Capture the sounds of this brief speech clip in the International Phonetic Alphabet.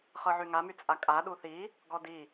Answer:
χɤʕyŋamy t͡sʼakʼa ɗuθi | ɡɔdi

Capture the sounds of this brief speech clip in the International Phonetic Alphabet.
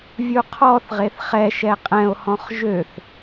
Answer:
vʲuqʰɔθʁeθ χɛʃɛ qʼɛ̃o̯hɔ̃χ ʒøθ

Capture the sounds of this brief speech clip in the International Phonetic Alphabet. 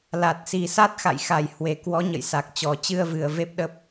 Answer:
la˨˩t̚si˨˩sa˦˥t̚ xa̰˧˨jxa˨˩jhwe˨˩ kwɔ˨˦ɲə̰˧˨jsa˨˩k̚ t͡ɕɔ˨˩t͡ɕɨ˧ə̯vɨ˨˩ə̯ ve˦˥p̚ɗə˦˥p̚

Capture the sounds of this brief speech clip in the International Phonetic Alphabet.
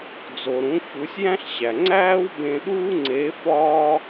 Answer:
d͡zo˩ɾũ˩˧ çu˩˧sʲjæ̃˥ɬɕæ˩ ŋ͡ǀæː˥wbẽ˧ɗuː˥ ŋ͡ǀe˧˥fɒː˥

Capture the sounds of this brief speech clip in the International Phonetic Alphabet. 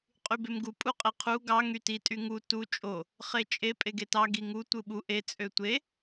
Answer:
qʼybemɡu pʼuqʼeqʰu ɡɑ ŋyti tʼyŋu tu t͡ʃʼo | χet͡ʃʼe pʼeɡetɑ ɡiŋu tʷɯɓu ʔe t͡sʼøtʷe

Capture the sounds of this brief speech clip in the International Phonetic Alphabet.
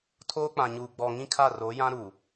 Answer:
tʰoː˦k͡pã˨ɲuː˨ ɡ͡bɔ˨ ŋĩ˦kʰa˦˨ro˨˦jã˦ ɾuː˨

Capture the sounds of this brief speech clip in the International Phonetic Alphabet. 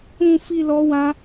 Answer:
ũ˧fi˧ lɔ˦wã˦

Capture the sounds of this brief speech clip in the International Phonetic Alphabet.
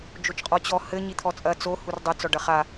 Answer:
d͡ʒot͡ʃqʼɔt͡ɕɔ hɘ ɲit̪ʰɔt͡sʼɐ t͡so hurdˤɘ t͡sɔɖɐχa

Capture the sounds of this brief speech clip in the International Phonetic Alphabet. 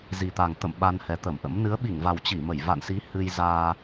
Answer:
zi˨˩t̪a˨˩ŋ t̪ə̰˧˨m ɓa˧nhɛ˨˦t̪ə˧˩mʔə̰˧˥m nɨ˨˦ə̯ɓi˧˩ŋva˨˩wt͡ɕi˧˩ mə˧˩jva̰˧˨nsi˨˦ hɨ˧jzaː˧

